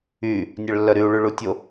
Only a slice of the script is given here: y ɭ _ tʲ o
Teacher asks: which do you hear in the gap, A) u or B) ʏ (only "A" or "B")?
A